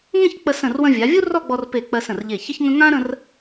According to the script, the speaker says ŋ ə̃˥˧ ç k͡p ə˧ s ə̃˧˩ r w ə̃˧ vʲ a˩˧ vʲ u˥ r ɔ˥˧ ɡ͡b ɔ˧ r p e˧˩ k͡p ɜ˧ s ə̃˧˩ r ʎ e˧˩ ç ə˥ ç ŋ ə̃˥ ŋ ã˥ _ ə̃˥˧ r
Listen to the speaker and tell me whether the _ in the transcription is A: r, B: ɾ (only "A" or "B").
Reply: B